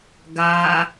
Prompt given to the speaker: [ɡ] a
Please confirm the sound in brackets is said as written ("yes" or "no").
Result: yes